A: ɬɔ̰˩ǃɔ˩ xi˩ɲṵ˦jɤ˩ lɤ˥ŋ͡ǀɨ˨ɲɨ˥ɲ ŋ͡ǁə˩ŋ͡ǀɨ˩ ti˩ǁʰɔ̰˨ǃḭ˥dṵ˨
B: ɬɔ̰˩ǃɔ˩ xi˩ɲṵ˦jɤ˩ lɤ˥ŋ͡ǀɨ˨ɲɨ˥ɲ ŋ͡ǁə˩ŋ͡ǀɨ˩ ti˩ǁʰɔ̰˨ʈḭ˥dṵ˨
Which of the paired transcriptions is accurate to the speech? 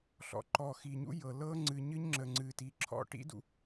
B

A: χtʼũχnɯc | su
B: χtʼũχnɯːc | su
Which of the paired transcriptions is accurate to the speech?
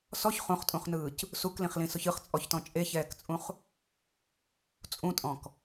B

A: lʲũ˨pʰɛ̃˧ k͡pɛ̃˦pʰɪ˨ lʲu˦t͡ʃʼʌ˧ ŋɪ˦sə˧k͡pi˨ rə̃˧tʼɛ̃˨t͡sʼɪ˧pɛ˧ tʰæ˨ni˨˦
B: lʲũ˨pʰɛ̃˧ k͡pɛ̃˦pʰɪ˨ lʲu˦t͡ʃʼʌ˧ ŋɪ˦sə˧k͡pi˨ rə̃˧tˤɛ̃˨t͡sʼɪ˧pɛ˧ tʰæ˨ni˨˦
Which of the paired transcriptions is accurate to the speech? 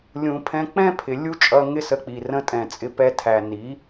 A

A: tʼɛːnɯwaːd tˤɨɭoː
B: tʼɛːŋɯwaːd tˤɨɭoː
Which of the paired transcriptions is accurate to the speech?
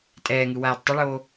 B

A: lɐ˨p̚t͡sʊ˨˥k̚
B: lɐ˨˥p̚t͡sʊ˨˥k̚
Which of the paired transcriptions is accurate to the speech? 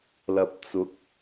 A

